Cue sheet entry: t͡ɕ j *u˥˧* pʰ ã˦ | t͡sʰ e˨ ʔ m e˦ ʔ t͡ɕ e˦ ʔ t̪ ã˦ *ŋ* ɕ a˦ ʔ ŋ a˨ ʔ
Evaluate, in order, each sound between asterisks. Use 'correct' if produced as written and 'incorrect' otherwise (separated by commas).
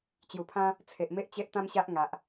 incorrect, incorrect